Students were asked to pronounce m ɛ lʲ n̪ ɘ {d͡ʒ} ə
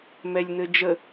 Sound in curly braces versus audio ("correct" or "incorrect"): correct